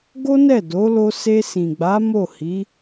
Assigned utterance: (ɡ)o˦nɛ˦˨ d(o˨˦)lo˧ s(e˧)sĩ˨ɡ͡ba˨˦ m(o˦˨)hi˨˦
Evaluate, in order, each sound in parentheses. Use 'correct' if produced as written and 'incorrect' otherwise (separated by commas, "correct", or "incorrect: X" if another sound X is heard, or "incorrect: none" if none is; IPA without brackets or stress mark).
correct, correct, correct, correct